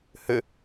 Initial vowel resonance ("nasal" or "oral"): oral